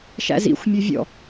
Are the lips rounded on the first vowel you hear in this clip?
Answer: no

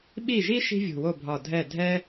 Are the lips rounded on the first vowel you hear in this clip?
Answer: no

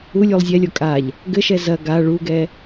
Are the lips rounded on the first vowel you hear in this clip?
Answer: yes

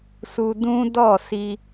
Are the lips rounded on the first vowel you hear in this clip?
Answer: yes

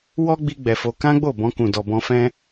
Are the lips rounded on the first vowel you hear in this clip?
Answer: yes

